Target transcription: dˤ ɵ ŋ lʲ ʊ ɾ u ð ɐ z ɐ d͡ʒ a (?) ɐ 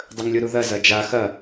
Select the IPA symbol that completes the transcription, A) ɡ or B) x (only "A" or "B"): B